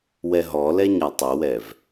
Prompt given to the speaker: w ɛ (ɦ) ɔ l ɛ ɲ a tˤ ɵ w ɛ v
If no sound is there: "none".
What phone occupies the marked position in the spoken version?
ɦ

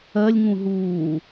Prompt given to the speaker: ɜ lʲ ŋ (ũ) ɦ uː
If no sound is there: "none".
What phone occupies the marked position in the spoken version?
ũ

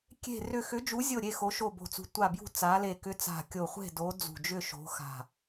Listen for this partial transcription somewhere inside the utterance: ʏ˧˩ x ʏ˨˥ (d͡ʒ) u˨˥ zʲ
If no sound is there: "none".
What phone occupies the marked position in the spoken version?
d͡ʒ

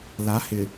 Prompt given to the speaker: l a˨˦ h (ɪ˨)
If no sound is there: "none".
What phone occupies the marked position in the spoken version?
ɪ˨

